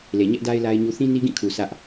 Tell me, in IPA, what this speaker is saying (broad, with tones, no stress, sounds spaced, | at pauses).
l e˨ ɲ ɛ˦ ʔ d a˦ ɪ̯ l a˦ ɪ̯ ɲ u˦ θ ĩ˦ n i˦ ɡ ĩ˦˨ kʰ u˨ sʰ ä˦ ʔ